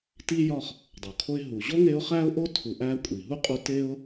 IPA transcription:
t i˦ j ɒ˥ χ | dˤ o˩ kʰ o˦ ɪ̯ ɦ u˩ ʑ o˥ ŋ e˦ ʊ̯ χ æ˥ ʊ̯ ʔ o˥ tʰ u˨ ʔ æ˦ kʷʼ i˩ ɦ u˥ qʼ u˦ t e˥ ʊ̯

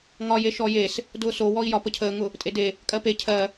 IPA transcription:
ŋ ɒ j e ʃ ɔ j e s | d ʊː s o w ɔ i̯ j ɒ p ə cʰ əː ŋ ʊ | tʼ e d e | kʼ ɜ p e cʰ ɜ

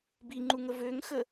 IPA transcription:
b i ŋ͡ǃ u ŋ ə v ø ŋ x ə

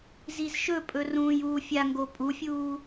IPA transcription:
z i z ʃ ɵ pʼ ɵ r ũː j uː fʲ a ŋ ɡ o pʼ u fʲ uː

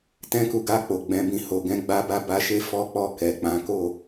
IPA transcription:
t ɛ̃˦ k u˧ ɡ a˧ k͡p o˨ ɡ͡b ɛ̃˨˦ b ĩ˧ h o˨ ɡ ɛ̃˧ ɡ͡b a˧ b a˧ b a˧ ʃ e˦ f ɔ˦ k͡p ɔ˦˨ k ɛ˨ k͡p ã˨˦ k o˦˨

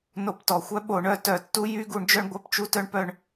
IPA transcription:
n o˧˩˧ p t ɔ˩ xʷ œ˦ ɓ o˧˩˧ ɳ œ˦˨ t œ˧˩˧ tː u˦ j y˦˨ ɡ u˧˩˧ ɳ d͡ʒ œ˦˨ ɳ ɡʷ œ˦˨ p t͡ʃ u˦ t œ˦ ɳ p œ˦˨ ɳ

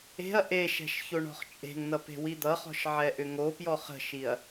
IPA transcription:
e̤ ɐ̯ ʔ e ʃ ɛ̤ ʃ ç o ɳ ɔ̤ χ t͡ʃʼ e̤ ŋ n ʌ p e̤ w i d̪ ʌ χ ɔ̤ ʃ ʕ ɛ ʔ ʏ ŋ o p j ɔ χ ə̤ ʃ i ɐ̯

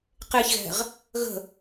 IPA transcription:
q e ç ɣ ɛ̤ ʁ | ɣ ə̤

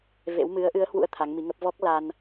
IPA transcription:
v ḛ˧˥ w m ɨ˨˦ ə̯ ʔ ɨ˨˦ ə̯ h w ṵ˧˥ ə̯ t̪ʰ a˨˦ ŋ m i˨˦ ŋ ə˦˥ p̚ v ɔ˦˥ k̚ l a˧ n

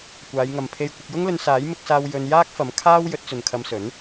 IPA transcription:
kʷ aː˨˧ j ŋ ɐ˨ m pʰ e˧ j kʷ ɪ˧ k̚ j ʊ˥ ŋ l ɵ˧ n s aː˨˥ j m ɪ˧ k̚ s aː˧ w j ɵ˧ n j aː˥ k̚ f ɐ˨˥ m kʰ aː˥ w j ɵ˨˥ t̚ t͡s ɵ˨ n kʰ ɐ˧ m s ɵ˨˥ n

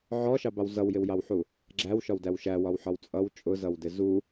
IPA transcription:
ʕ ɔ ʃ ɑ b ɑ w z ʌ w j ɪ w j ɑ w ħ u | ɡ͡ǁ æ w ʃ ɒ w d æ w ʃ æ w ɒ w ħ ɒ w t͡sʼ ʌ w t͡ʃʼ ʊ z ʌ w d ɪ z u

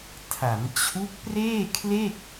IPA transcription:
tʰ a˩˦ m t͡ɕʰ u˦˥ k̚ p r eː˥˩ kʰ l e˥˩ k̚

